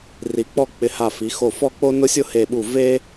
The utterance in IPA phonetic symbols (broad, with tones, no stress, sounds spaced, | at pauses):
r i˩˧ k͡p ɔ˥˧ k͡p ɪ˧ h a˧˩ f i˩˧ x o˧˩ f ɔ˥˧ k͡p o˥ n ʊ˥ sʲ ʊ˥ h e˧˩ ɓ u˧˩ v e˥